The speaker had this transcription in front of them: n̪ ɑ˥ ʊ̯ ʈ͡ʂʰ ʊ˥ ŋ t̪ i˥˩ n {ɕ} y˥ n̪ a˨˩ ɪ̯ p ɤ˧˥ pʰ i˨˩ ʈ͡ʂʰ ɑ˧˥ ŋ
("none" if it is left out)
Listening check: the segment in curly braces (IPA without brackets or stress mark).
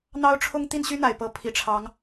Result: ɕ